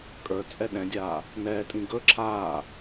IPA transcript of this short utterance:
kʼə˞t͡sʼɛ ɗɛ̃dʲaː | nɛːtʼĩ ɡɵ ǁʰaː

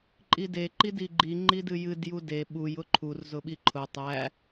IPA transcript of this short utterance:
ǃʼide ǃidiɡ͡ǃi ŋ͡ǃidɨjɨd jude ɓuj ʊǃʰur zʊɓiǃʰʊ tˤæ

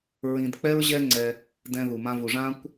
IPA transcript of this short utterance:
ɹĩ˧d k͡pɛ˦ɹ ʑɛ˦ŋ͡ǀɛ˧ | dɛ̃˧ ðu˨mã˧vu˨ʐã˦kʷ

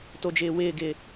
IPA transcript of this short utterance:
tod͡ʒɪːwɪːɡɪː

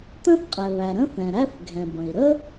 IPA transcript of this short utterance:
t̪ə̃˥θqʼɛ˩βæ˩ ɾə̃˥θɛ̃˩ɾæ˥θɡʱɛ̃˩ bə̃˩i̯ ɾə˥

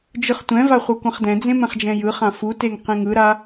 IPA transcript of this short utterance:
d͡ʒɯχtʷɛ̃va χʷʌkʷãχdɛ̃d͡zẽ mɛ̃χd͡ʒɛ̃jɯχã fu teŋqẽŋɯɾa

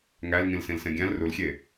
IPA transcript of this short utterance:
ŋælŋĩlsĩl sẽɡʲæ̃l rulxʲe

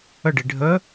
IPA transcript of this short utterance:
əɖi ɖʱə

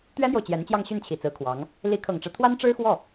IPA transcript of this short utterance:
t̪ɥɛ˥n̪jo˨ʊ̯ t͡ɕjɛ˧˥nt͡ɕjɑ˥˧ŋɕy˥˩n t͡ɕʰi˨˩t͡sɹ̩˧˥kʰwɑ˧˥ŋ | li˧˥kʰɤ˨˩ŋʈ͡ʂɻ̩˦ t̪ʰwa˥nʈ͡ʂɻ̩˥xwɔ˥˩

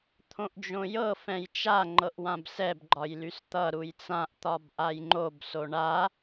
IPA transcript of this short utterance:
t̪ʰõʔd͡ʒõjɤ fɛ̃jt͡ʃa ŋ͡ǃɤʔwãbsɛb ɡ͡ǃɒjlyst̪ʌ ɾujt͡sãʔ t̪ɒbʔajŋ͡ǃob soɳa

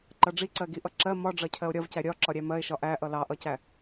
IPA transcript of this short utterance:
ǃʌɖ͡ʐiǀɜ ɡiʔʌǁɜ mɒɖ͡ʐʌ cʰɜo̯ɾʲɒvcæ ɾʲɒ ǁɒɾʲæmɜe̯ʃɒ ʔæʔʌ lɑʔʌcæ

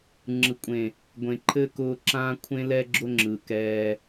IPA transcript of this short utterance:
ŋ͡ǁɯ˨ kʷʼẽ˨ | ɡʷẽ˨ǃʰɘ˦kʊː˧ ǁãː˧kʷʰẽ˧lɛ˧ɡ͡ǁʊ˧ ŋ͡ǁɯ˨ kɛː˧

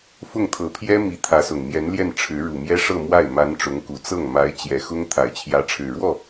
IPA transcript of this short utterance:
fʊ˥˩ŋt̪ʰɤ˧˥pʰjɛ˥ mi˧˥ t̪ʰä˧˥sʊ˨˩ŋmjɛ˧˥nljɛ˥˩n ʈ͡ʂʰɻ̩˧˥ ɻu˨˩mjɛ˥ ʂɤ˥˧mwa˥˩ɪ̯ ma˧˥n ʈ͡ʂʊ˧˥ŋku˨˩ t͡sɤ˥˩ŋma˧˥ɪ̯ t͡ɕjɛ˨˩xʊ˥ŋ t̪ʰa˨˩ɪ̯t͡ɕʰjä˧˥ʈ͡ʂʰɻ̩˨˩ɻwɔ˥˩

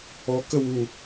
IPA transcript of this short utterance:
ɔ kəwu

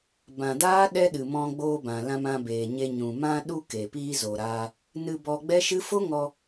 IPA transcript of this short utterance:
bã˨daː˦ ɗɛ˦ɗɨ˨mɔ̃˧ ɡ͡boː˧bã˨lã˧m ã˧beː˨ɲe˧ ɲũ˨ mã˧ɗu˧ ke˨piː˧zo˨ɾaː˧ | nɨ˧bɔ˧ɡ͡bɛ˦ʃɨ˦ fo˦ŋɔ˧

